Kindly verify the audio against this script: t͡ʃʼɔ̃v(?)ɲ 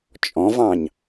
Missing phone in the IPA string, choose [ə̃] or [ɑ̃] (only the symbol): ɑ̃